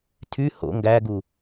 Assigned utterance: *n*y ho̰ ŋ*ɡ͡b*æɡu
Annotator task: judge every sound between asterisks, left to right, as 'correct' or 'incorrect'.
incorrect: tʰ, incorrect: ɡ

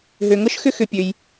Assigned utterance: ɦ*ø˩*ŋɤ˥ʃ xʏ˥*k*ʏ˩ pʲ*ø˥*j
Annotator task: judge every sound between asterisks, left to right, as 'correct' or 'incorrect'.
correct, incorrect: x, incorrect: ø˩

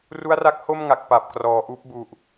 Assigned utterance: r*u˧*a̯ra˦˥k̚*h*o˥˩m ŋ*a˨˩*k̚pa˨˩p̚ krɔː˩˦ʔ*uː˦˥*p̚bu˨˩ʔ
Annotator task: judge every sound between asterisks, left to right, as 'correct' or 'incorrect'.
incorrect: u˦˥, correct, correct, correct

